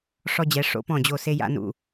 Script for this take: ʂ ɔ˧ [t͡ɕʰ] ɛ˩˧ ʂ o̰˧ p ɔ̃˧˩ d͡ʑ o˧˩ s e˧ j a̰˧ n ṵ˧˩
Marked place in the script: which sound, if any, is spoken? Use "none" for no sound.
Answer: d͡ʑ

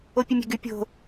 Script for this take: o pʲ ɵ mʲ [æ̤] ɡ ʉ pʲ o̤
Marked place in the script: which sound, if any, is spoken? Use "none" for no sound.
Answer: æ̤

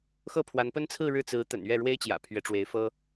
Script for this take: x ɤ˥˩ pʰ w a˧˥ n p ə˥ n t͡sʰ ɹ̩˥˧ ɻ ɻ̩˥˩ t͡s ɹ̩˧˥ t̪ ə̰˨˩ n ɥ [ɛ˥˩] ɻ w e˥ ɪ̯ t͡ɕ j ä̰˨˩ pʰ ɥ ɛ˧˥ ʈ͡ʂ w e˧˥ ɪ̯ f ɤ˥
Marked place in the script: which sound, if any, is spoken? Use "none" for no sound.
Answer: ɛ˥˩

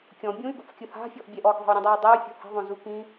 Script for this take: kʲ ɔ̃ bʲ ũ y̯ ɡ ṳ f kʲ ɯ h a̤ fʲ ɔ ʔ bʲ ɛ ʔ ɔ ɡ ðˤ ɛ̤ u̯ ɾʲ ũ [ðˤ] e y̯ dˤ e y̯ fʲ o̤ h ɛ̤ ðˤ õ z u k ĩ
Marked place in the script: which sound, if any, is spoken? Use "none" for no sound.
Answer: dˤ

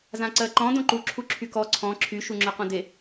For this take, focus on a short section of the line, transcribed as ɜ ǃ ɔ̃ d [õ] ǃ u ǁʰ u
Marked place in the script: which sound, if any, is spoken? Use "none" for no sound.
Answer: õ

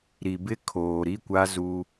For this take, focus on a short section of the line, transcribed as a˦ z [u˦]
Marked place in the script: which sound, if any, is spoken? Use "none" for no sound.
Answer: u˦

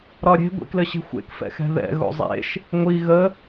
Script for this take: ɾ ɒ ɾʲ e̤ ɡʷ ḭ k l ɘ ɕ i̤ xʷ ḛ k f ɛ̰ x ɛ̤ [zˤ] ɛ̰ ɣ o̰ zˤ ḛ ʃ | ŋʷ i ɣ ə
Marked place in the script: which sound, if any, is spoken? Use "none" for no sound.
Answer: ð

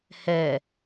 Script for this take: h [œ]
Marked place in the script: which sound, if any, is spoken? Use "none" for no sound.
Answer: ɛ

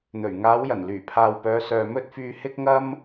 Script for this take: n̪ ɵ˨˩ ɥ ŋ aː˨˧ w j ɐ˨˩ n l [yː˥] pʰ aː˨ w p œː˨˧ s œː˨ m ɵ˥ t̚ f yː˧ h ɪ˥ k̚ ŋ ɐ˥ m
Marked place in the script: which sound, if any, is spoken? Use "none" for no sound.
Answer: yː˨˩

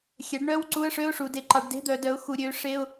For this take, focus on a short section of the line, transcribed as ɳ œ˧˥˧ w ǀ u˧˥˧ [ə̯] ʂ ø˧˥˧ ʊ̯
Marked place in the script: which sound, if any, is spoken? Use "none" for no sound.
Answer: ə̯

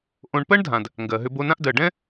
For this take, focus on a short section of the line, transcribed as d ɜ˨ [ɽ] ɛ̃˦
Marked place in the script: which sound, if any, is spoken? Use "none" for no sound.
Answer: ɖ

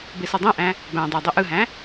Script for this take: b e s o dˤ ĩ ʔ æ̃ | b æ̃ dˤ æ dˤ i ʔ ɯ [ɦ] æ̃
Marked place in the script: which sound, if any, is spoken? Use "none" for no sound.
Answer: ɦ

